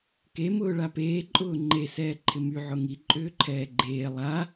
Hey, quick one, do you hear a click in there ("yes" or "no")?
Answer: yes